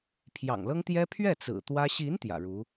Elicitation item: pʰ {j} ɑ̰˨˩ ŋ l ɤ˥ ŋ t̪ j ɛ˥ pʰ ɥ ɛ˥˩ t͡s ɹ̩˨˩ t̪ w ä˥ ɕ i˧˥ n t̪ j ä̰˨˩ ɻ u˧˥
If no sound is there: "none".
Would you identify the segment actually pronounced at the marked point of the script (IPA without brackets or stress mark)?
j